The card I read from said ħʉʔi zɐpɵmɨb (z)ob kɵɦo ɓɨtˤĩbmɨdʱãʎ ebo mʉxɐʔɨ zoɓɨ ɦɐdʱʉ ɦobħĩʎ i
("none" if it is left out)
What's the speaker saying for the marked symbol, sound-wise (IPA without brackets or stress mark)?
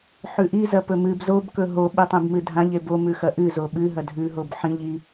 z